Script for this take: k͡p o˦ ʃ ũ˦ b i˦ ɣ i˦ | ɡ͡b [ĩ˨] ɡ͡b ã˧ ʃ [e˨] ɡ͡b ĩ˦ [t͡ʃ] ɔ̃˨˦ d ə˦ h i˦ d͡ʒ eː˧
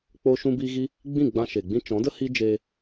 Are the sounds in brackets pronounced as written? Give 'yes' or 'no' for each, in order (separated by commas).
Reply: no, yes, yes